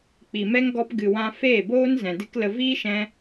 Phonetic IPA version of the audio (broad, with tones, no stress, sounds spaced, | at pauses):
k͡p i˨ m ɛ˦ ŋ ɡ ɔ˧ p ɡ ɨ˨ w ã˧ f eː˦˨ b oː˦ n z ɛ̃˨ d ɨ˦ k l ə˧ v iː˦ ʃ ɛ̃˧